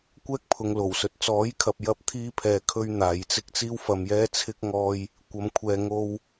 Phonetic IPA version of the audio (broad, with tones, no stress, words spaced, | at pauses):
kʷɛː˥k̚pʰʊ˨ŋlo˨˩wsɵ˨t̚ t͡sɔː˨˥jkʰɐ˨p̚ jɐ˥p̚t̪ʰiː˥pʰɛː˧ kʰɵ˥ɥn̪aː˨˧jt͡sɪ˥k̚ t͡siː˥wfɐ˧mjɛː˥t͡sʰɪ˥k̚ ŋɔː˥j | kʷɐ˨mkʷʰɛː˨ ŋo˧w